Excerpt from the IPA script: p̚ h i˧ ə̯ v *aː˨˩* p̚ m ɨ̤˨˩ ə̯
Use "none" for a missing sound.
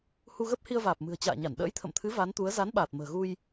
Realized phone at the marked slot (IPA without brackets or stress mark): aː˨˩